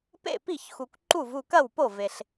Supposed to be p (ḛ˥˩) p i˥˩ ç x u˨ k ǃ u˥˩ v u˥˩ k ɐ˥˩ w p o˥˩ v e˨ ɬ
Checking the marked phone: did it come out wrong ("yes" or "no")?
no